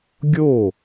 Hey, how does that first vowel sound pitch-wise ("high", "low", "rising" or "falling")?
falling